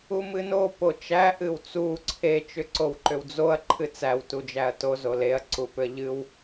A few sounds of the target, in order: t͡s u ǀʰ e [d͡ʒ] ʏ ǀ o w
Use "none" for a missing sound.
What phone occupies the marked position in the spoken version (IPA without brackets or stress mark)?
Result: t͡ʃ